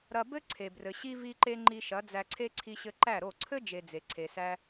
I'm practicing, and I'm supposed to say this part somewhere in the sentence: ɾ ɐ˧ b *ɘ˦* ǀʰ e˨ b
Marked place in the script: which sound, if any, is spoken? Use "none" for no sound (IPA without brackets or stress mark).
ɘ˦